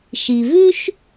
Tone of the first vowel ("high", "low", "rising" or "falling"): low